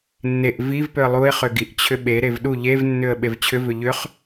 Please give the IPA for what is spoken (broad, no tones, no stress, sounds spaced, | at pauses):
nː e ʔ v i v p ʏ ə̯ lˠ u ɪ̯ χ ʏ ɡ i ʔ t͡ɕʰ ʏ ɓ e ɾ e v ɗ u ʎ e v nː ʏ ə̯ ɓ e v t͡ɕʰ ʏ v ʏ ʎ ʏ χ